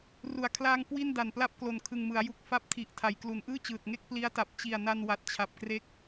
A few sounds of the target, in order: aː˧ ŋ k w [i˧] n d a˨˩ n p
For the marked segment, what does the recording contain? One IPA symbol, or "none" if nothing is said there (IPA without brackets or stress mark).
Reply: i˥˩